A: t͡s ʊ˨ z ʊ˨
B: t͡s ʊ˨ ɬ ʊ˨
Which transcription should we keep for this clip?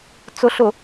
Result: B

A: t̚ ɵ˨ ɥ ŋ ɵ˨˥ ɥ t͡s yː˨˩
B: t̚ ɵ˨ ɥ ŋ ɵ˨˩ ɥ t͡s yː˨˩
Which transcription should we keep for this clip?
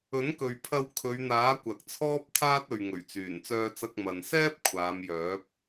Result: B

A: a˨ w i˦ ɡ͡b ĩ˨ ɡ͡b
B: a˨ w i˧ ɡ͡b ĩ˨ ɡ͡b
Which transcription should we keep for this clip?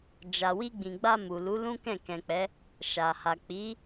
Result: B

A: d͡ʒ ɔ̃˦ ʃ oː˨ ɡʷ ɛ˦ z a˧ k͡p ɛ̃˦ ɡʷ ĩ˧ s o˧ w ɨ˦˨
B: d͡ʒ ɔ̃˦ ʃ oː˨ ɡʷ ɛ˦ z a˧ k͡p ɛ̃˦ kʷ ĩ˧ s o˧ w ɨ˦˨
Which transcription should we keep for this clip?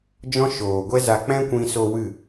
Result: B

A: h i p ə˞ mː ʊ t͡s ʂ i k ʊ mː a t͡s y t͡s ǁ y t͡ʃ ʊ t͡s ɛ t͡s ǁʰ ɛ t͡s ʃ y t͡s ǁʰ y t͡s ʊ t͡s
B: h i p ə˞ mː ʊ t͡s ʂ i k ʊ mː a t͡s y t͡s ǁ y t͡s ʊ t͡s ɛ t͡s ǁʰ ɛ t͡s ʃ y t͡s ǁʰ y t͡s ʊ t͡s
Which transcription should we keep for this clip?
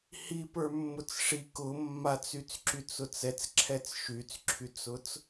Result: B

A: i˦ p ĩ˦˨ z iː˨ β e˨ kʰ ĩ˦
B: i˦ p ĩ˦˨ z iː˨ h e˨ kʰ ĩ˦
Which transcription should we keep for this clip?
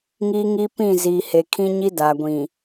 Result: B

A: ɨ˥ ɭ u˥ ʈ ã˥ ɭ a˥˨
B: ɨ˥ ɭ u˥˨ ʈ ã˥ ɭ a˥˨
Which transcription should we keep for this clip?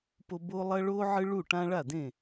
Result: B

